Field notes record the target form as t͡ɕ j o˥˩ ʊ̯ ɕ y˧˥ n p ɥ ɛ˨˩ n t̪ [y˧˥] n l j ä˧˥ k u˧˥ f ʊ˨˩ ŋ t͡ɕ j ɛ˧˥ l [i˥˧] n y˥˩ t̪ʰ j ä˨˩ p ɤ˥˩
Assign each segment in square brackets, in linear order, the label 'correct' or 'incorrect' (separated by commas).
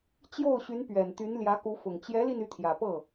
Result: correct, correct